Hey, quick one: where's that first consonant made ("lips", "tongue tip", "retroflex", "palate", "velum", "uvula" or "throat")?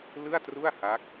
tongue tip